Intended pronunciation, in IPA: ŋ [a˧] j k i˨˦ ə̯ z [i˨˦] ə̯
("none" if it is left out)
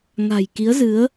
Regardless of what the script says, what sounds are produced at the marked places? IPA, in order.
a̤˨˩, ɨ˨˦

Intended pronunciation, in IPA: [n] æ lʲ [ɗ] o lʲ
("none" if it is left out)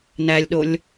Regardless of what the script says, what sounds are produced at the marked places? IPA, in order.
n, ɗ

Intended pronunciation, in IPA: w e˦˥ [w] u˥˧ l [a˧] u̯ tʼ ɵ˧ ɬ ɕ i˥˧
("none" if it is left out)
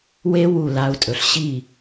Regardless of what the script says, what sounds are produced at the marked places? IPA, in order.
w, a˦˥

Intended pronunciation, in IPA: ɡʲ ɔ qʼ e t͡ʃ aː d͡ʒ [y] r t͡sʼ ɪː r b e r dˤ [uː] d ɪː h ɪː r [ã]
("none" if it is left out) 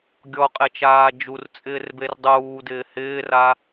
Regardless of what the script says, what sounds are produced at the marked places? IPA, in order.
u, uː, a

